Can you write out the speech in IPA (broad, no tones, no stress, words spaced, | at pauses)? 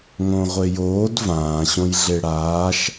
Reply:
ŋõʁʷejoːd vãːɕõj ɮeɽaːʃ